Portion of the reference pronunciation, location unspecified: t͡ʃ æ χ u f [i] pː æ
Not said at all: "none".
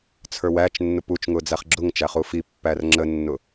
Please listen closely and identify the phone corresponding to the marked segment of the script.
i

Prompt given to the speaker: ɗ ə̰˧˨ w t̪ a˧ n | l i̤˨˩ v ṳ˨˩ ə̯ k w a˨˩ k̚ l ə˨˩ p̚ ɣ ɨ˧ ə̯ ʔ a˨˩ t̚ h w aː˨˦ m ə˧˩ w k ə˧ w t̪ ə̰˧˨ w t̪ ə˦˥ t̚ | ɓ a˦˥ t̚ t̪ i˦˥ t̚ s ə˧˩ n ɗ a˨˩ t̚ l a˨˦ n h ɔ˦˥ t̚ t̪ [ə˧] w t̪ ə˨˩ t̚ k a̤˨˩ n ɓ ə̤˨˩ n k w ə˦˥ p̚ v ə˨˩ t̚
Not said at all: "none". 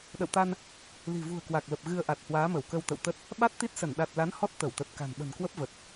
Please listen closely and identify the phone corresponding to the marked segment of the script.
ə˧˩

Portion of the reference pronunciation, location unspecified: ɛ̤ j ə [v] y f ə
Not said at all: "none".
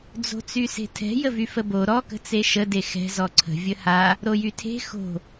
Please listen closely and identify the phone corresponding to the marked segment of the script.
v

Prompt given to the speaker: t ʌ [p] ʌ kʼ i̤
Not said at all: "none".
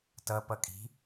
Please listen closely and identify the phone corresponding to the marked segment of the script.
p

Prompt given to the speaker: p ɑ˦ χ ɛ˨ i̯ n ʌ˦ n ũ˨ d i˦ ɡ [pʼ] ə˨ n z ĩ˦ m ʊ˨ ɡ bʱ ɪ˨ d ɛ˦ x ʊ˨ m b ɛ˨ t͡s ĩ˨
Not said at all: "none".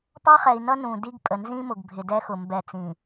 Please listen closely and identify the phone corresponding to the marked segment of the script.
pʼ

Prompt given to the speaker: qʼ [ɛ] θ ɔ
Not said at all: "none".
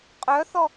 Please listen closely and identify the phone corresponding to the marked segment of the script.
œ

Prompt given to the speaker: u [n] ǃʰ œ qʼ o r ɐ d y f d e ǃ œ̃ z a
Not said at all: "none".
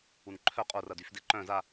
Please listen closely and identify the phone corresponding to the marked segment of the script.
n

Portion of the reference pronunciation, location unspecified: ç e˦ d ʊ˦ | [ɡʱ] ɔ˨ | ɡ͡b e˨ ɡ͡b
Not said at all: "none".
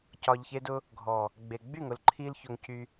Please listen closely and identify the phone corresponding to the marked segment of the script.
ɡʱ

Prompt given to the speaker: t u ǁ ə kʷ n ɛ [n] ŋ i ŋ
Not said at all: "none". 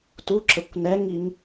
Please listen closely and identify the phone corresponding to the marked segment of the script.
none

